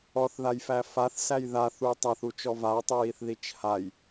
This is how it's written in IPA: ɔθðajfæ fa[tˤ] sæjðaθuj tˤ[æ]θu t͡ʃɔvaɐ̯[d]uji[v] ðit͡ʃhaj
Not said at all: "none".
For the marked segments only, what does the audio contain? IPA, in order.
θ, æ, tˤ, θ

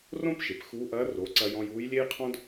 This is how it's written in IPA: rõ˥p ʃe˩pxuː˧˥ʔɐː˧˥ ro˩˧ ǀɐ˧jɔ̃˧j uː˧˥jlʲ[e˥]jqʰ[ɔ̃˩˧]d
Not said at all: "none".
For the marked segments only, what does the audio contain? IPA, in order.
e˥, ɔ̃˥

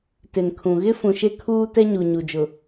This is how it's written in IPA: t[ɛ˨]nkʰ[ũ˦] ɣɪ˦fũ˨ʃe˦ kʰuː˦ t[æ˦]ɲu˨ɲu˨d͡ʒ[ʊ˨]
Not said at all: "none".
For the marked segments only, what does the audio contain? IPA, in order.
ɪ˨, ũ˨, ɛ˦, ʊ˨

